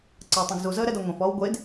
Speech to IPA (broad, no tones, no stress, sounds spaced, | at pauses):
ǀ ɐː tˤ ũ ɡ z u z əː ɾ ɛ d ɔ ŋʷ ẽ f ɔː w ɡʷ e d